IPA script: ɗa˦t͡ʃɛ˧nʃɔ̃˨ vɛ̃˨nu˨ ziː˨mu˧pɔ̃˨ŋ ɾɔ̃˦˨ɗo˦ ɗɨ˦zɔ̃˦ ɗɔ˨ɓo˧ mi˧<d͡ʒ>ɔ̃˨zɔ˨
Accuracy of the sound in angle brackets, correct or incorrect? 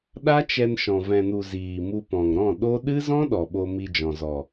correct